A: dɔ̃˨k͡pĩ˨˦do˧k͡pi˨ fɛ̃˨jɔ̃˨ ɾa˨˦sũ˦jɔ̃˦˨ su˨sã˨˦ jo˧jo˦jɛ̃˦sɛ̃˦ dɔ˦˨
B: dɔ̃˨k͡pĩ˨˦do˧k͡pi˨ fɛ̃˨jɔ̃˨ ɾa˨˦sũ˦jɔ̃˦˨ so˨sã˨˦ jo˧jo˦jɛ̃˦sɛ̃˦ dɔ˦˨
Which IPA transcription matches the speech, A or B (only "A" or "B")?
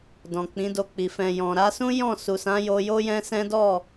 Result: A